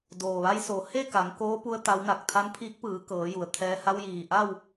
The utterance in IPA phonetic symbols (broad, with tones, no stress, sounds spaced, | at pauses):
d oː˩ ʋ a˧ j s o˩˧ h e˥˨ k a˩˧ ŋ k oː˧˥ p u˧ ə̯ t̪ a˧˥ w n a˧˩ k̚ t̪ʰ a˧˥ n pʰ iː˧˥ k̚ p ɯː˩˧ k ɤː˩˧ j u˩ ə̯ t̪ʰ ɛː˧ h a˧ w j iː˩ ʔ a˥˨ w